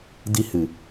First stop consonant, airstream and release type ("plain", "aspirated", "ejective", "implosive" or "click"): plain